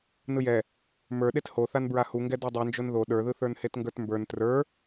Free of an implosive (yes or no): no